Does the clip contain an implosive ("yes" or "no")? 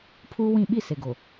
yes